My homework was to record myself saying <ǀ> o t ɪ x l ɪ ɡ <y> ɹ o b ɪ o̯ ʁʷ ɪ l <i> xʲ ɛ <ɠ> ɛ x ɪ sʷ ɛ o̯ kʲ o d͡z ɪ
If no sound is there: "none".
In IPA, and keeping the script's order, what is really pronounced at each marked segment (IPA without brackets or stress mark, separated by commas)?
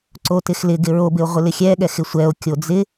ǀ, ɪ, ɪ, ɠ